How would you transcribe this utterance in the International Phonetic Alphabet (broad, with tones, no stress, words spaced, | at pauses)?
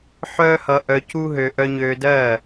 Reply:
ħœː˥hʌ˧ ʔœ˧ cu˥ɦø˧ ʔœ˧ ɲøː˧dɜː˥˩